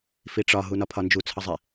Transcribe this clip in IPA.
f i ʈ͡ʂ ɒ ɦ u n ɒ pʰ ɒ n d͡ʒ u t͡sʰ ʌ zˤ ɛ

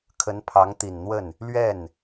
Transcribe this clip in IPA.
kʰ ə˧˥ n pʰ ɑ˧˥ ŋ t̪ i˨˩ n n̪ w ə˥˩ n | l ɥ ɛ˥˩ n

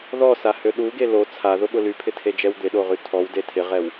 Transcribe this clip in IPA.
ð ɔ s a h ø ɗ u ɡ e l o t͡sʰ a ð ʊ ɓ ʊ l y pʰ ɪ tʰ e d͡ʒ ɛ w d̪ ɪ ɗ o ʁ y tʰ ɔ w d e tʰ ɪ ʁ ɛ w

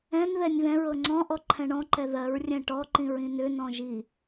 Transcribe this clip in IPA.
ɛ̃ n ð ɛ nʲ ð ɛ̃ ɹ ɤ ŋ͡ǀ ɔ̃ ʔ ɔ ǃʰ ɛ̃ ɳ ɔ̃ ǃ ɛ ð ɜ ɹ rʲ ɛ̃ ʈ ɔ ǃ ĩ ɹ ĩ n ʏ n ɔ̃ ʒ i

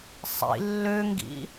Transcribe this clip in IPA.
sˤ ḭ lː ø ŋ ɡ ḭ

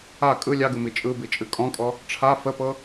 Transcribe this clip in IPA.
a kʼ ɯ lʲ ɑ ɡ ɯ m i t͡ʃʼ ɯ b i t͡ʃʼ ɨ kʼ ɔ̃ kʼ ɔ | ʈ͡ʂʰ a f ə p ɤ

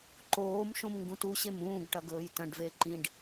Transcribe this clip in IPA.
ǃ oː m ʃ õ m ŋ ɡ ũ t u ɕ e m ũː ɡ ʈ ɐ ɡ ɵː j t ɐ̃ ɖ v e ǃ ĩ ɖ

